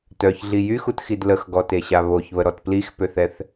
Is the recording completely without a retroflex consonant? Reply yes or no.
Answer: yes